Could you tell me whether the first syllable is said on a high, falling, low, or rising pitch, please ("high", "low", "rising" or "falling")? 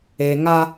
low